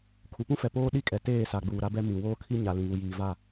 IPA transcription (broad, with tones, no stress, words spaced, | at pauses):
kʰu˨pũ˦fɛ˨ poː˦ ɗi˦kʼɛ˨ teː˦˨sa˨ɡ͡buː˨ ɾa˦bɛ˦ mĩ˨woː˦ kʰi˦ ɲa˨ lĩ˨βu˨jiː˨ va˦˨